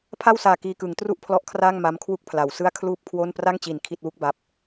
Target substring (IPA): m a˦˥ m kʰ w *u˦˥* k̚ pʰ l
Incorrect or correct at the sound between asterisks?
incorrect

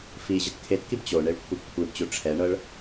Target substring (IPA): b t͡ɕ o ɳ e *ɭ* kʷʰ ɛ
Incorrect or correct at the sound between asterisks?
correct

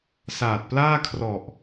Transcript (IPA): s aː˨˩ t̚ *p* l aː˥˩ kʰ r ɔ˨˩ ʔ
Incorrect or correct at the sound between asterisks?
correct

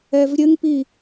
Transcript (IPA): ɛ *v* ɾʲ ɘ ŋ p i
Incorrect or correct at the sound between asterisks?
correct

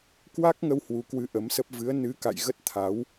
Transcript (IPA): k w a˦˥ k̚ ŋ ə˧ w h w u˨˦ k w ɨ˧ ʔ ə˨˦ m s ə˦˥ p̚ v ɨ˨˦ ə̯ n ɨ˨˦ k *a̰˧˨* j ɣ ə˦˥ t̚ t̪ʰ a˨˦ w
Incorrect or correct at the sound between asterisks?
correct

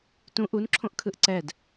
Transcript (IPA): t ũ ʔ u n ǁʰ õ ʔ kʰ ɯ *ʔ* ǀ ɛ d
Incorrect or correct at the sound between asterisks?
correct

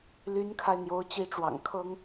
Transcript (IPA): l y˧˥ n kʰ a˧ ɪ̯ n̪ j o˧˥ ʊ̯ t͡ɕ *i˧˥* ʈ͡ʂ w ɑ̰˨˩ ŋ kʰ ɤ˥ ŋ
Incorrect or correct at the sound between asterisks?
correct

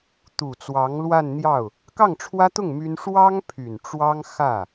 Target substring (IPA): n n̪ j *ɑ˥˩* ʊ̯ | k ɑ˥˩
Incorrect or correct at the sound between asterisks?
correct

